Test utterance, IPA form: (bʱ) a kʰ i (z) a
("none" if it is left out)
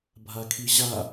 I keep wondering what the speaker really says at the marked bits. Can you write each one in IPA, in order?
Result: bʱ, ʑ

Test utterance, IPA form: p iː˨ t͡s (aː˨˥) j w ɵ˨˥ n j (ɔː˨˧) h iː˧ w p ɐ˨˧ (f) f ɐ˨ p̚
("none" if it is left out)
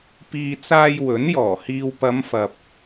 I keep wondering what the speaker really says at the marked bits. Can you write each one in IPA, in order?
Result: aː˧, ɔː˨˩, m

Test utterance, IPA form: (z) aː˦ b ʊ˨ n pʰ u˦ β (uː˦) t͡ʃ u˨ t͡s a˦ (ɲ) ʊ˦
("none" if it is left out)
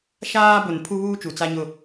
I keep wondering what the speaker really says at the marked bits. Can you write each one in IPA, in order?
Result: ʃ, uː˦, ɲ

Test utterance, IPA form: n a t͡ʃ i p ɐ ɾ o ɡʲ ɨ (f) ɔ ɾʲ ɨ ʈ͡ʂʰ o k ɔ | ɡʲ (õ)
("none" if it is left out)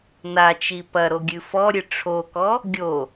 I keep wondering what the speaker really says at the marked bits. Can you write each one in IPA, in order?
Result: f, o

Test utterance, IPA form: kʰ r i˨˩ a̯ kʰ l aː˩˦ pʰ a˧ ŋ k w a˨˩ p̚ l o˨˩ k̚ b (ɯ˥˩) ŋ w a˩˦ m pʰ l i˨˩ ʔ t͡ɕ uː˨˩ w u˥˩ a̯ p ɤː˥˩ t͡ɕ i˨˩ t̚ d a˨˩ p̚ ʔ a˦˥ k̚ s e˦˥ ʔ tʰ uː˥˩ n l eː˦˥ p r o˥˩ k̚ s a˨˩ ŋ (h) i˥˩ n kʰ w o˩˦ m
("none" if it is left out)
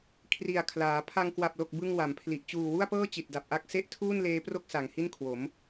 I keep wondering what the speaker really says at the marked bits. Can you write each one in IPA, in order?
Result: ɯ˧, h

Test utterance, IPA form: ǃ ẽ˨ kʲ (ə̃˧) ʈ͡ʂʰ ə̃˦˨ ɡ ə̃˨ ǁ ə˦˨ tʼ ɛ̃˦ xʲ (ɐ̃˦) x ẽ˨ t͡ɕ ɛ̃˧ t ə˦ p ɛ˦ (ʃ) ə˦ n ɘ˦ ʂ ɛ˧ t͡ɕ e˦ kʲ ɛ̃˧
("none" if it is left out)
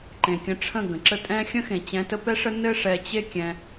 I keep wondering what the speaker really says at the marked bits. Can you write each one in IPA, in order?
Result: ə̃˧, ə̃˦, ʂ

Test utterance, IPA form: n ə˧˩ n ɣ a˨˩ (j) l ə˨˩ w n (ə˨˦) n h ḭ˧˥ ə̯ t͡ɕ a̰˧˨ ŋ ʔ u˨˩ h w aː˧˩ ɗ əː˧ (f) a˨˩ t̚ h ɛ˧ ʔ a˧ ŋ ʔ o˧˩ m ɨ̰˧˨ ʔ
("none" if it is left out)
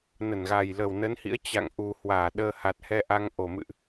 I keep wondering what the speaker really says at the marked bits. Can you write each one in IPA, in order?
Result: j, ə˨˦, h

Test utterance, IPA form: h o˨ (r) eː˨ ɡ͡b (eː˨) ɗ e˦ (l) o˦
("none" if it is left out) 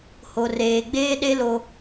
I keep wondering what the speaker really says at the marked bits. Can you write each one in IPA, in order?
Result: r, eː˦, l

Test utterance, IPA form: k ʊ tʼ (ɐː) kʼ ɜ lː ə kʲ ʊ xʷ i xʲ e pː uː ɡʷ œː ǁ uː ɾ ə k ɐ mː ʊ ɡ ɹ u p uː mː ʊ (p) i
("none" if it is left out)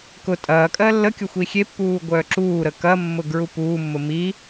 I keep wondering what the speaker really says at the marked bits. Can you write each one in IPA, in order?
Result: ɐː, m

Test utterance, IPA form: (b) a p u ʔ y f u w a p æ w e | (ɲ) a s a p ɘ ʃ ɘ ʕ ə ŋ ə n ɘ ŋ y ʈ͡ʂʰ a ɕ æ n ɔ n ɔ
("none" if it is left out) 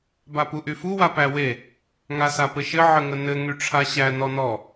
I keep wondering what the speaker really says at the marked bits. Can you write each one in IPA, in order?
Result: b, ŋ

